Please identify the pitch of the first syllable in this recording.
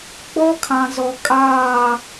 high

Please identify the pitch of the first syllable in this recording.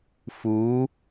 rising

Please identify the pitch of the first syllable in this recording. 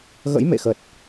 rising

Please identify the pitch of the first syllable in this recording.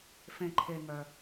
low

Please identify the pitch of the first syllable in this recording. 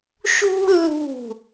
high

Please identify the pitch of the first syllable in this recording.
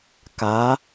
rising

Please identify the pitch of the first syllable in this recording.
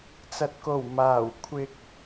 low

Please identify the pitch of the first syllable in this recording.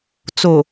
low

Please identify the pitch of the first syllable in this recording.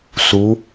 rising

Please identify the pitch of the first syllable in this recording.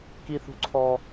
high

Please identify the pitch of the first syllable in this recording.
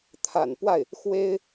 low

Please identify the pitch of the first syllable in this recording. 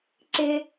high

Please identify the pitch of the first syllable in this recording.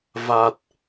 low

